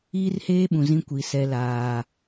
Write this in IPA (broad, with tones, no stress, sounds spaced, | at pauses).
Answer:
iː˦ r h eː˦ ɓ ũ˨ z ĩ˦ kʷ i˨ s ɛ˦ l aː˦